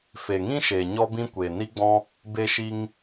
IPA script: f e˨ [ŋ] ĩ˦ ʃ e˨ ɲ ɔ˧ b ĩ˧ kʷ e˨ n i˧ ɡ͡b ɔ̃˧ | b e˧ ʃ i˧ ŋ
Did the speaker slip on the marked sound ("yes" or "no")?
no